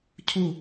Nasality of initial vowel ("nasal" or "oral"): oral